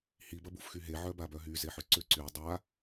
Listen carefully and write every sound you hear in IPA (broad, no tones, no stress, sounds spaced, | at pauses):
h i b ɐ b u f x y ɦ e ʕ œ b a b œ ɦ y z e ħ ʏ ǀ ʏ ǀ y dˤ a